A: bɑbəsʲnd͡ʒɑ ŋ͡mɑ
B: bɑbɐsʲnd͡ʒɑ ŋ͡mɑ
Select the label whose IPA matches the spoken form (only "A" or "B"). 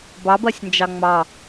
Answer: B